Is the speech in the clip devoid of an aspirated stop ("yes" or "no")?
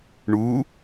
yes